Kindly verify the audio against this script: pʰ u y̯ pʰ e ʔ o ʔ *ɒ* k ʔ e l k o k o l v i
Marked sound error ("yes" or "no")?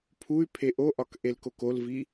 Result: no